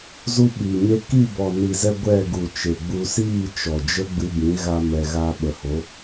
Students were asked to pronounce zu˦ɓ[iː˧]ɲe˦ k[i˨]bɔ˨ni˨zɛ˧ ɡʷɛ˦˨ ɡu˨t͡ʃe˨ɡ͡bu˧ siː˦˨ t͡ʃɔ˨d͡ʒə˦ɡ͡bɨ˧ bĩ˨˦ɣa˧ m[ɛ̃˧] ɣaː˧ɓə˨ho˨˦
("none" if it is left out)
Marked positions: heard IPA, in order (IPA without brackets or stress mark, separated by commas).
iː˨, i˦˨, ɛ˧